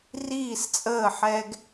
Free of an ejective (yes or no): no